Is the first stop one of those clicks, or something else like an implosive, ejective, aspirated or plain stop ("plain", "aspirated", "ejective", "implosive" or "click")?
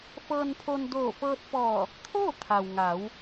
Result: aspirated